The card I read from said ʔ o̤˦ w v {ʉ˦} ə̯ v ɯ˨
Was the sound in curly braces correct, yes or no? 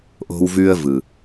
yes